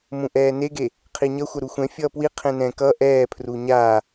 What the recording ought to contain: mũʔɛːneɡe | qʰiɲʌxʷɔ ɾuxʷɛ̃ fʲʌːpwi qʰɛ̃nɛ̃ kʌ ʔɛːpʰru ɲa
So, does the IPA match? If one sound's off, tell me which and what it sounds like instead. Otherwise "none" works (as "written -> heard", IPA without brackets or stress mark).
ɔ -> ʌ